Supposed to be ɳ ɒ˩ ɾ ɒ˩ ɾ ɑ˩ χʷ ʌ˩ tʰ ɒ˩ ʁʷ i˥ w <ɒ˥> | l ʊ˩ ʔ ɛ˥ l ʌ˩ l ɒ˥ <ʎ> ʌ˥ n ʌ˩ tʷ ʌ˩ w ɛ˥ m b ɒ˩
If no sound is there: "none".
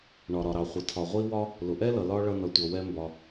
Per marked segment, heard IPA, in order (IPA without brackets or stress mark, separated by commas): ɒ˥, ɭ